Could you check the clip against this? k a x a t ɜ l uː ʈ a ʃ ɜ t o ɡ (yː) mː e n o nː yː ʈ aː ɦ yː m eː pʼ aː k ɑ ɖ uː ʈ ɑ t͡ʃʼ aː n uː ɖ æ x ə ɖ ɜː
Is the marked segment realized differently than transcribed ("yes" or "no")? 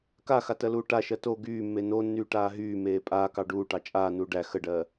no